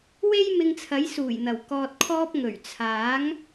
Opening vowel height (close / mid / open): mid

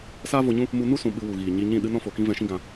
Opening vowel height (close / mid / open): open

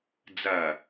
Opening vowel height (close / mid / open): open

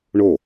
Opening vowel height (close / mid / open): mid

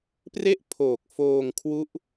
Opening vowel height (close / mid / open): mid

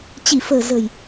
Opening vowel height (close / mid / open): close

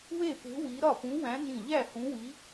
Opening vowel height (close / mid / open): mid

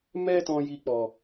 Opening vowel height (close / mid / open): mid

